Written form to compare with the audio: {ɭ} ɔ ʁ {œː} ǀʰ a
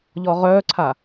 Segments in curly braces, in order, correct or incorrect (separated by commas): incorrect, correct